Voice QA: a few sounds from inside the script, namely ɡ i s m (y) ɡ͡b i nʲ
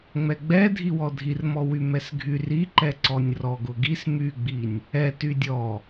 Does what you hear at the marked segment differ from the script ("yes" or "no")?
no